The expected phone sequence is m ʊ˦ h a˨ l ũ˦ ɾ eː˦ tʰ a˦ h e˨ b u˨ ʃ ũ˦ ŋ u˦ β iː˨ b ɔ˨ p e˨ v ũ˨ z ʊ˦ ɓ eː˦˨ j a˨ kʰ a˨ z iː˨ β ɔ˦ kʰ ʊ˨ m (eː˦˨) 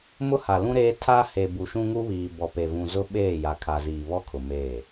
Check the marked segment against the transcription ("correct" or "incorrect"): correct